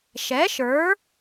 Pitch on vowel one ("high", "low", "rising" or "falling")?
rising